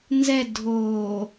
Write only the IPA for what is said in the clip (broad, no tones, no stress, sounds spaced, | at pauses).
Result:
n z ɛ dʱ o